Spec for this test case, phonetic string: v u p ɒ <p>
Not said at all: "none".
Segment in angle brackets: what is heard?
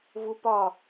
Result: none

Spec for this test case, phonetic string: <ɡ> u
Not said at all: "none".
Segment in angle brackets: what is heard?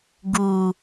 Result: ɡ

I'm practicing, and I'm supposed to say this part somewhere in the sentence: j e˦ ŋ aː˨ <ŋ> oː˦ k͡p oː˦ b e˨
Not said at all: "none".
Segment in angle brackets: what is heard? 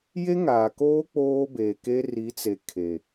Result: k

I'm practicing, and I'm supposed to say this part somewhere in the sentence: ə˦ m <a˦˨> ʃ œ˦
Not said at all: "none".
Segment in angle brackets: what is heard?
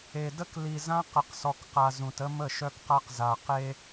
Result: ə˦˨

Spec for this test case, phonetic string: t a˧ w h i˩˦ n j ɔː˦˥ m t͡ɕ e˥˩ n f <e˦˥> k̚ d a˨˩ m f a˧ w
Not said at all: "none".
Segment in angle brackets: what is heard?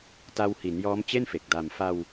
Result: e˨˩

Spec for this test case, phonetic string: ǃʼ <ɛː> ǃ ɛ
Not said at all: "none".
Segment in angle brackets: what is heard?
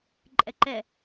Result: ɛ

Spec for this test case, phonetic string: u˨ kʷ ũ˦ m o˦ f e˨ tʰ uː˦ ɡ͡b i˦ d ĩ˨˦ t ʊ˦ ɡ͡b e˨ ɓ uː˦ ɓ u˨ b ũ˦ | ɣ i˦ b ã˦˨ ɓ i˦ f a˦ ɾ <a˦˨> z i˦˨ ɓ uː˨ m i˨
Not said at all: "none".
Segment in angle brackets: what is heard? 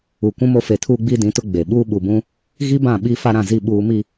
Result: ã˦˨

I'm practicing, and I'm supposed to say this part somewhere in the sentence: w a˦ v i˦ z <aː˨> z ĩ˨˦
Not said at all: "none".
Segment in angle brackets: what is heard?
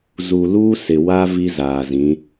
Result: aː˨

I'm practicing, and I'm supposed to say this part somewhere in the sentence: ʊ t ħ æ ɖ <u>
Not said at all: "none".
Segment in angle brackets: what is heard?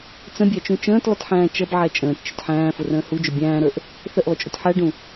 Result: ũ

